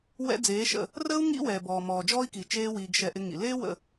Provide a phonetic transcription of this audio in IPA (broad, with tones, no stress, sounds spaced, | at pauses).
w ɛ̰˦ d͡z eː˨˦ ʃ ə̰˦˨ | r əː˦ u̯ ŋ ḭ˦ w ɛː˨ b ɔː˨ m ɔː˨ d͡ʒ ɔː˦ i̯ k i˨ t͡ʃ eː˦ w iː˧ ɡ ʃ ɛ˧ ʔ ɪ˧ ŋ ḭ˨ l eː˦ w ə̰˦˨